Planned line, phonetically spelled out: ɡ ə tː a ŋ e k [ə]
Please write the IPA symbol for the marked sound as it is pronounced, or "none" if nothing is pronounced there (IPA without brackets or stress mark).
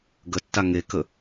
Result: ə